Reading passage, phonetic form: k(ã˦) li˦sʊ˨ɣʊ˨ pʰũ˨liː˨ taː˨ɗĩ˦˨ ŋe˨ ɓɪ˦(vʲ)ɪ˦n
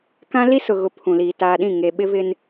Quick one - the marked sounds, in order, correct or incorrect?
correct, incorrect

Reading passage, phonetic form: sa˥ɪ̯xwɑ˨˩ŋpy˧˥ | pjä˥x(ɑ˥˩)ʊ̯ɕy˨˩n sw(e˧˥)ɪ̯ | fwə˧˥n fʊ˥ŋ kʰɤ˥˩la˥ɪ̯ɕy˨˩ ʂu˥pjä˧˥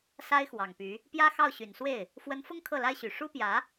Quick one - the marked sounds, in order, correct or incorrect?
correct, incorrect

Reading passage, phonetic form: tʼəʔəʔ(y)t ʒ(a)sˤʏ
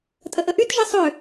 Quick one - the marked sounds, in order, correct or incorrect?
correct, incorrect

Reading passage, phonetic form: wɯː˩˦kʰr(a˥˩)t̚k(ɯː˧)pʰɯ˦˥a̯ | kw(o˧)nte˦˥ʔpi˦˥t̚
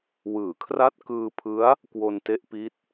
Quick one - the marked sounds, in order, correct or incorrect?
incorrect, correct, correct

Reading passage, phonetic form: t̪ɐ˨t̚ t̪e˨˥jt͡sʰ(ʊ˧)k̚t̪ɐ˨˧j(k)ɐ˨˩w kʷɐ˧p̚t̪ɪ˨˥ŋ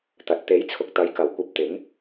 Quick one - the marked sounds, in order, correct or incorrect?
incorrect, correct

